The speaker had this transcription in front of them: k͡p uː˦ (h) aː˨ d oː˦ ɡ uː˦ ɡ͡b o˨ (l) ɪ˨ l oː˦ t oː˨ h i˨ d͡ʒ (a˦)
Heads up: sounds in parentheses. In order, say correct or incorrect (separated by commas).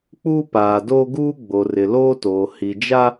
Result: incorrect, incorrect, correct